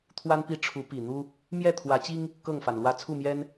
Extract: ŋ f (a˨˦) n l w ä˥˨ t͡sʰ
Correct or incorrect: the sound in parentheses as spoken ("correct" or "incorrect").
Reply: incorrect